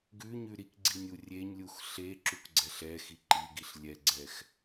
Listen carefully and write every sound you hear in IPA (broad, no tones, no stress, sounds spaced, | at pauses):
ɡ ʉ ɲ ʉ ɾ i k ɡ͡ǀ i nʲ u rʲ e ɲ lʲ u x ɬ e ǁ u k ɡ͡ǀ ɛ ɬ ɛ x i ǃ i ɡ i ɬ lʲ ɛ ɡ͡ǀ ɛ x